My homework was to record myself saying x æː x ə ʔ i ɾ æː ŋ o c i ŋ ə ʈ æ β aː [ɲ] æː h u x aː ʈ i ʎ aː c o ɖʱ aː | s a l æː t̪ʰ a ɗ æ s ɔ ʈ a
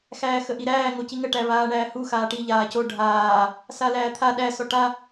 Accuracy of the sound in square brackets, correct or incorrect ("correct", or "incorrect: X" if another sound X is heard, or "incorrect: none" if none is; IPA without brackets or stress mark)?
incorrect: ɳ